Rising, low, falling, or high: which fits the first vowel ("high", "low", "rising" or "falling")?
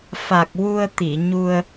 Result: low